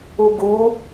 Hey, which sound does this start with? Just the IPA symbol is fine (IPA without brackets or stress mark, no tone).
u